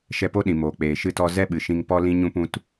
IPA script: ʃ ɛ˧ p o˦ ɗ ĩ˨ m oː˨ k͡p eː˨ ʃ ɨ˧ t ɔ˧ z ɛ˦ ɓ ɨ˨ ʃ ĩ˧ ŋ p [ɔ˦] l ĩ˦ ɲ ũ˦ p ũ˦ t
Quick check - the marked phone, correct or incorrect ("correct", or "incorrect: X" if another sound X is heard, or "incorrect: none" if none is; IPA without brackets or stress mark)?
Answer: correct